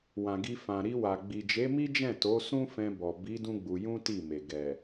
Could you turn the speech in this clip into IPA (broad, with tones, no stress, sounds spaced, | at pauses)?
w ã˨ ɡ i˧ f ã˨ ɾ i˧ w a˨ ɡ͡b i˨ d͡ʒ e˨˦ m i˦ d͡ʒ ɛ̃˦˨ t o˨˦ s ũ˦ f ɛ̃˧ b ɔ˨ b i˨˦ d ũ˦ ɡ͡b u˧ j ũ˦ t i˦˨ m e˨ ɡ ɛ˨